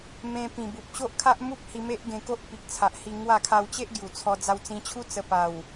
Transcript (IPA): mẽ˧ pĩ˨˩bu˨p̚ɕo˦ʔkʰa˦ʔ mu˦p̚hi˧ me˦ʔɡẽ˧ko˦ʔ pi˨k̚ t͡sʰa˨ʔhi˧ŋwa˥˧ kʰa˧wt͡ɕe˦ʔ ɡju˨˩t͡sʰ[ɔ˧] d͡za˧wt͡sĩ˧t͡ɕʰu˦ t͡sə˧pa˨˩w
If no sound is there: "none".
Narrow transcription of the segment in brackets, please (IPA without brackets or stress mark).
ɔ˧